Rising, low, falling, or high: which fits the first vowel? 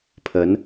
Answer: rising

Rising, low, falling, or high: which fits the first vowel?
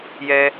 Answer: high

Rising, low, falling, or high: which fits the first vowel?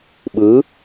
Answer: rising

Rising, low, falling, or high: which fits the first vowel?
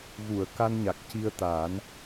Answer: low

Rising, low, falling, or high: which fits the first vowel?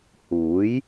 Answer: rising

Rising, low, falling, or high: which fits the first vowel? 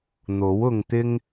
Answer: rising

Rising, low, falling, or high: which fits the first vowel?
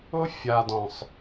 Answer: high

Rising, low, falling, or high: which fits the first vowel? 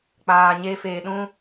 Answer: low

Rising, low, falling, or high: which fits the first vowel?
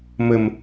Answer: low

